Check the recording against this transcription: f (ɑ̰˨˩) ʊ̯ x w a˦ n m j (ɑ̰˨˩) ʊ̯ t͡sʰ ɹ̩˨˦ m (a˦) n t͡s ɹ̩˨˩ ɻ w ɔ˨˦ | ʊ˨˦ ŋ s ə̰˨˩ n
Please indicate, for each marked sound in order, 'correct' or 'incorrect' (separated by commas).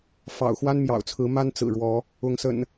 correct, correct, correct